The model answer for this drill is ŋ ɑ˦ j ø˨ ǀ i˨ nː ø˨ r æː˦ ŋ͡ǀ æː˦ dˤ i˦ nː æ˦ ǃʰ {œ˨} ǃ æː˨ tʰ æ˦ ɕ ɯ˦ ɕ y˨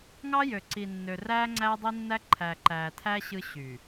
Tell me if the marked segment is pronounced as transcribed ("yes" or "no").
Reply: no